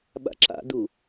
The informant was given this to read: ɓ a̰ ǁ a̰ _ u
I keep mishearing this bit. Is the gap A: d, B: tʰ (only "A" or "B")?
A